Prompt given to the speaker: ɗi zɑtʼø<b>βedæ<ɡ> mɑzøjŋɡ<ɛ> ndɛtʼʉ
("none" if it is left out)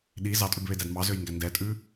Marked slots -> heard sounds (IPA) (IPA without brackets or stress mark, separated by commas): b, d, æ